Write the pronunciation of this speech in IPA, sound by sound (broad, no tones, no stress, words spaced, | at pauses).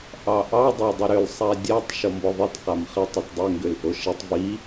ʔɑʔɑ dˤɑdˤɪɾʏl sˤadʲatˤ ʃɔmbɔðˤit qamχɪ tˤɪtdˤʏ ŋɡʏlʔoʃɛtˤ vi